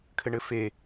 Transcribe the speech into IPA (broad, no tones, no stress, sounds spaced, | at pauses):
kʰ ɘ ɳ ɘ f e